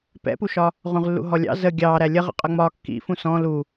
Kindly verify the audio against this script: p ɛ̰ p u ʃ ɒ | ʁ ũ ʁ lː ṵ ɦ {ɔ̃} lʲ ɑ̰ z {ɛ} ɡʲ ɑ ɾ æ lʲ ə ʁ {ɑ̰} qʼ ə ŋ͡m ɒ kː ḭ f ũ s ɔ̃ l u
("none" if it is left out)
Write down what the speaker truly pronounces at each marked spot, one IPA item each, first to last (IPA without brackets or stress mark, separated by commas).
ɔ, ə, ə̰